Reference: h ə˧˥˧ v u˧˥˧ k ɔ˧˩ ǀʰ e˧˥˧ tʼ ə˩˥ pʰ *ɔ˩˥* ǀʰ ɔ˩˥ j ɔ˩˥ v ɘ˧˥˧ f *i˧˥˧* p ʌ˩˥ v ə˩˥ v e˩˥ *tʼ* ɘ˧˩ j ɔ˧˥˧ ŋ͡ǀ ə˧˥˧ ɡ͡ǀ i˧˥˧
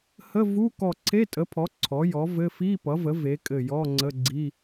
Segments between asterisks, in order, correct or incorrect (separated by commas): correct, correct, incorrect